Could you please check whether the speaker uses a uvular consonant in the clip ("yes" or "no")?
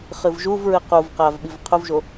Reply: yes